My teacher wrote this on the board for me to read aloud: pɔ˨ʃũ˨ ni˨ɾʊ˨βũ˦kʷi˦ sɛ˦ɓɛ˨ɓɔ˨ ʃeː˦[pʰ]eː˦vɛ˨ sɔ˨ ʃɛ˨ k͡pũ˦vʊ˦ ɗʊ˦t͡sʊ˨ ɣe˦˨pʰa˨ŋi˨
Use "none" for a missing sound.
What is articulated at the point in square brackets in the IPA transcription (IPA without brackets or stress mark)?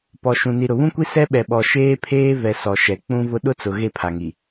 pʰ